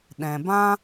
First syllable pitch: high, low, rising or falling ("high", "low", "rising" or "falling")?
low